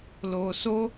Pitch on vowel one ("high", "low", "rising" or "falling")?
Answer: low